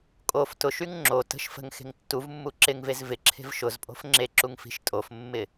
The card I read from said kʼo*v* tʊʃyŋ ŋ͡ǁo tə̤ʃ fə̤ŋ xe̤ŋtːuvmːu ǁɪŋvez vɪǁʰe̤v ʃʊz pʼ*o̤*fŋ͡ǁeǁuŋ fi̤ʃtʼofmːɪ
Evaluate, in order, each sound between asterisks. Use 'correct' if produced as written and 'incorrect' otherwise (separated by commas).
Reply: incorrect, correct